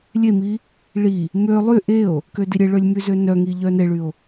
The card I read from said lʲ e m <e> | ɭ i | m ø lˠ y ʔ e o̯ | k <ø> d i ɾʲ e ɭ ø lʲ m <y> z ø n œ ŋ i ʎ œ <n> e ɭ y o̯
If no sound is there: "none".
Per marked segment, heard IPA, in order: i, ø, y, n

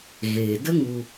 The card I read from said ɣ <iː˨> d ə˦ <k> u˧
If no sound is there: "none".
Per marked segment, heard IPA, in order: eː˨, ŋ

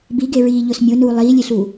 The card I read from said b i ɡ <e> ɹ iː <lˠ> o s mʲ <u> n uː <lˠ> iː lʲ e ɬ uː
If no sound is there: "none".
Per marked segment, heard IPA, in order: e, ʎ, o, lˠ

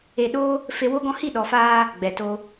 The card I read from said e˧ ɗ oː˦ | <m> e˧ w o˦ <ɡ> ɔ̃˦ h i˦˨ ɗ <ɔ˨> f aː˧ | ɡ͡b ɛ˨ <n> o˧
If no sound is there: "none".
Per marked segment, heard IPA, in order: f, ɡ, ɔ˨, t

